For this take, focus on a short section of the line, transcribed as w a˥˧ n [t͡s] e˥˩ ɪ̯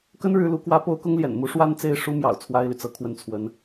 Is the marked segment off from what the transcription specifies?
no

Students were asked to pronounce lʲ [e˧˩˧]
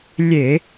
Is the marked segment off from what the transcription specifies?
no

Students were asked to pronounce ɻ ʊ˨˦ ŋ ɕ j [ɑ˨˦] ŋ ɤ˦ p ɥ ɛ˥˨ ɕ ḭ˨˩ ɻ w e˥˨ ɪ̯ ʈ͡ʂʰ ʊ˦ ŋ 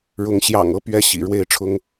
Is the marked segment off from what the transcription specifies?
yes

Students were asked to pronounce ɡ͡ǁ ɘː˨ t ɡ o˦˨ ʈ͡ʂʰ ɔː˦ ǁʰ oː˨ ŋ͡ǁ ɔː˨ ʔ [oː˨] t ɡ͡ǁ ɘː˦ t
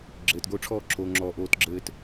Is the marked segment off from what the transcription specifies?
yes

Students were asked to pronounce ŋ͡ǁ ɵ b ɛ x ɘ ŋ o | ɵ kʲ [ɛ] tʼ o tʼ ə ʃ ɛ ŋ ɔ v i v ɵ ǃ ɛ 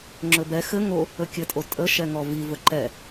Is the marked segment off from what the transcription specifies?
yes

